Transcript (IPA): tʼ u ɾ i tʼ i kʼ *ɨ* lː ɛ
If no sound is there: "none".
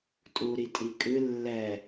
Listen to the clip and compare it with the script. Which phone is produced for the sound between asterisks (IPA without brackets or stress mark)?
ɨ